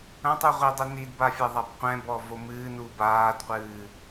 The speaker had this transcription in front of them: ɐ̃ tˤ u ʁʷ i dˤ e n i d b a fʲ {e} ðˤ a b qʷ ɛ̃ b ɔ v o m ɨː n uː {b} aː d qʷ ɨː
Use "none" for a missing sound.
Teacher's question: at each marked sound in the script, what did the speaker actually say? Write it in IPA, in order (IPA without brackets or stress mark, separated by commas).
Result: ɛ, b